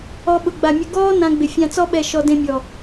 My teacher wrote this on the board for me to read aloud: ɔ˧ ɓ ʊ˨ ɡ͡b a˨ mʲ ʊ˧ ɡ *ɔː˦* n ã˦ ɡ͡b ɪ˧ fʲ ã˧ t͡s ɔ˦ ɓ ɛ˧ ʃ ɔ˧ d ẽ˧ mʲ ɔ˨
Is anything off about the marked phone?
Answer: no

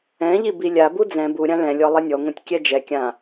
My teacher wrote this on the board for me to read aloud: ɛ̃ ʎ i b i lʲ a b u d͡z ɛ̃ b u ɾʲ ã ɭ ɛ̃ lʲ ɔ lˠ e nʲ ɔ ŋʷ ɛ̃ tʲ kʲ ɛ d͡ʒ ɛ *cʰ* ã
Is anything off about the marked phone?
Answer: yes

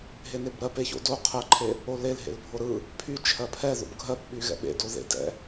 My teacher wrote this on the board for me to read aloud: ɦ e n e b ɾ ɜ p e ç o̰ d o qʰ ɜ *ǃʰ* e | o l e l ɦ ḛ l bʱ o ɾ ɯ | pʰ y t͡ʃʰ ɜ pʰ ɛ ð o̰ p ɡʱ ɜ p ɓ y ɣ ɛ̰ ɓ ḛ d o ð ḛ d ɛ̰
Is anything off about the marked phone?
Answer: no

